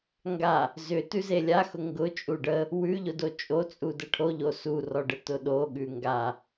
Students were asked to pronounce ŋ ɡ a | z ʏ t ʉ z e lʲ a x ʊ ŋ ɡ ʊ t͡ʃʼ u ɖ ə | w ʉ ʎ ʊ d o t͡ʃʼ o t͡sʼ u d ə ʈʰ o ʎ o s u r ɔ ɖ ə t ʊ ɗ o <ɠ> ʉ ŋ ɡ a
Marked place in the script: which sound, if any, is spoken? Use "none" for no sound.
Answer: ɠ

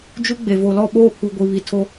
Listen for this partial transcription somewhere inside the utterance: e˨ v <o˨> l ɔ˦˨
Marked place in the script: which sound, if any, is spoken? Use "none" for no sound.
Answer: o˨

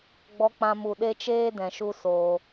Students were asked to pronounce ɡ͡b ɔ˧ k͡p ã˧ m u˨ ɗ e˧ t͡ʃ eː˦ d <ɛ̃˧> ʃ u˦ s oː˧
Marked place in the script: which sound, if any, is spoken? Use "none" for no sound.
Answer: ɛ̃˨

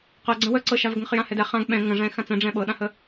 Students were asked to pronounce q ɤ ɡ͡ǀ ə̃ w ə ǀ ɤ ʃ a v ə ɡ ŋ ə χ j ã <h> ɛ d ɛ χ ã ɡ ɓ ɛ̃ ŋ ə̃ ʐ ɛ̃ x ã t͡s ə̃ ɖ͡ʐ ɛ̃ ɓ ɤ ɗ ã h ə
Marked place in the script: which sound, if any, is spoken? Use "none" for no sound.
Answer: h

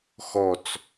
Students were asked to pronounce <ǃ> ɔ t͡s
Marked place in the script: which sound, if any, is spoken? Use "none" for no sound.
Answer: x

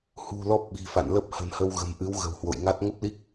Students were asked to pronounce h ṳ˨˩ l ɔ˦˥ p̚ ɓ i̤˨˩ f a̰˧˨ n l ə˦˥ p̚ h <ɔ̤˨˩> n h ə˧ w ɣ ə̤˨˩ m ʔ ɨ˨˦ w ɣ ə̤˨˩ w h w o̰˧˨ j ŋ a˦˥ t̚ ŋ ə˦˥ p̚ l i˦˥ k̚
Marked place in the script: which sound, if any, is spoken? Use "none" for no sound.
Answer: ə̤˨˩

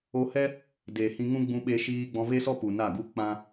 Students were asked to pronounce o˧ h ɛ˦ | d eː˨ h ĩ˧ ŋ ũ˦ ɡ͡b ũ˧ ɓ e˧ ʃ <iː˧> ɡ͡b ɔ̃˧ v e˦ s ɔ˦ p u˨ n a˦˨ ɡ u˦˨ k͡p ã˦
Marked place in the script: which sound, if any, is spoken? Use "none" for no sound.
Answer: iː˧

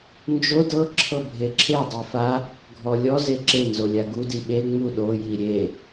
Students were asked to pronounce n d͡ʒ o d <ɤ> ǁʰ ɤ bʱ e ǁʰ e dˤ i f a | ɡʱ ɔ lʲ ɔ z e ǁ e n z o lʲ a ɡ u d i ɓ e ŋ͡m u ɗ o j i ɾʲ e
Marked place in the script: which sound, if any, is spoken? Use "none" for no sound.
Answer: ɤ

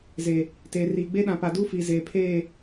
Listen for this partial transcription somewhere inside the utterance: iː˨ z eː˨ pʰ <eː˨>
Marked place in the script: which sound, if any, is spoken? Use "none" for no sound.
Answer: eː˦˨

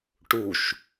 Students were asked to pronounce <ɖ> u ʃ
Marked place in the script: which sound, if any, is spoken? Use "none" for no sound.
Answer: ʈ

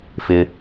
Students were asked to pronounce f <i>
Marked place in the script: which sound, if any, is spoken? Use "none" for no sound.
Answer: ɪ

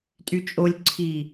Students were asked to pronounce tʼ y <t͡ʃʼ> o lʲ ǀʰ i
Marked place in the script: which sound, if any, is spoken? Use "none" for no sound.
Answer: t͡ʃʼ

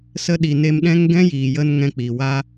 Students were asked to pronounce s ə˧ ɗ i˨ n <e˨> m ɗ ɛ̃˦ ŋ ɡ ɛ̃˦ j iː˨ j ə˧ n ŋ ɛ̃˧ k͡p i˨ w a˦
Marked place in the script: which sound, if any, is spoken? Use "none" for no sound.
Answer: e˧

